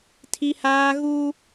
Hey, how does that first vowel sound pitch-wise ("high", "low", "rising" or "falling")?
high